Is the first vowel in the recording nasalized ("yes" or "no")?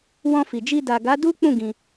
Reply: yes